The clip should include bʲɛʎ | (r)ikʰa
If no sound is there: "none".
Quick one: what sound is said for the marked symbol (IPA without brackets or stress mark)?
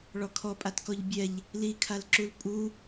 l